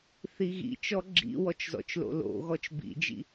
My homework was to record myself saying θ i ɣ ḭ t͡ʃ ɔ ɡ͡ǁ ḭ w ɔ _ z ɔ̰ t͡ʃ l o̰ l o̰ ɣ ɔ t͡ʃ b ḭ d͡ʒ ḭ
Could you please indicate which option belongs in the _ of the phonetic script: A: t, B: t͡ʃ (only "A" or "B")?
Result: B